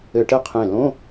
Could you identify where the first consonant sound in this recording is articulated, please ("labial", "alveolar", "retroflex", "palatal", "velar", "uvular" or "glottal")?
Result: retroflex